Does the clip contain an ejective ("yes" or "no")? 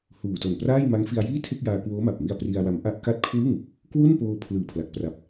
no